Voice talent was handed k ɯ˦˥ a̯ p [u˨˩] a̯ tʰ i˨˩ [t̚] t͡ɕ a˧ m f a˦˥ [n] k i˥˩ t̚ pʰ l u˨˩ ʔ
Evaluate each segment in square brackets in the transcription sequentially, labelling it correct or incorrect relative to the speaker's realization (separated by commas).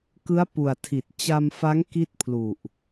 correct, correct, incorrect